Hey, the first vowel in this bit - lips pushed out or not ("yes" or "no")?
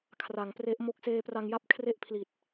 no